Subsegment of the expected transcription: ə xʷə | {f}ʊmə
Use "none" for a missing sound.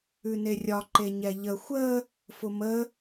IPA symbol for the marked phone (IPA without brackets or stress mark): f